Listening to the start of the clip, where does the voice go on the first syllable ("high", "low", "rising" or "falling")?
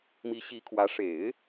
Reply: rising